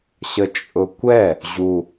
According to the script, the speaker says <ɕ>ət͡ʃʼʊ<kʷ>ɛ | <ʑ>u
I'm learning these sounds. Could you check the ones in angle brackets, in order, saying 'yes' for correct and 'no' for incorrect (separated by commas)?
yes, yes, yes